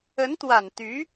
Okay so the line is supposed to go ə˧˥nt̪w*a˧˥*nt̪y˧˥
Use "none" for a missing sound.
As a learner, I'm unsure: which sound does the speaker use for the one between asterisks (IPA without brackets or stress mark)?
a˨˩